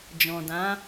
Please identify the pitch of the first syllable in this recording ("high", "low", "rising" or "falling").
low